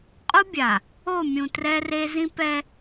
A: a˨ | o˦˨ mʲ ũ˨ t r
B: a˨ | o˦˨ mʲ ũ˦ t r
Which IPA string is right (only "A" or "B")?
A